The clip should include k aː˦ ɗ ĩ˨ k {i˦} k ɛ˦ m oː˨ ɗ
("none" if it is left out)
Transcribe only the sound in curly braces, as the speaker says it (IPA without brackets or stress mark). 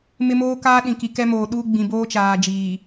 i˨